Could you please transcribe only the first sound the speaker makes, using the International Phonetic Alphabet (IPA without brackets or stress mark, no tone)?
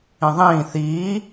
ĩ